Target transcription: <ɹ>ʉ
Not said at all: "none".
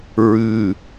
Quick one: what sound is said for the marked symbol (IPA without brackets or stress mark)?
ɹ